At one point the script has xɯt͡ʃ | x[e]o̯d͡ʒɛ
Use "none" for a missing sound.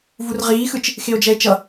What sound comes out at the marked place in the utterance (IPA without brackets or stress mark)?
e